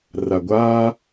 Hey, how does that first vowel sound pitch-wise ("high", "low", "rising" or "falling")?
low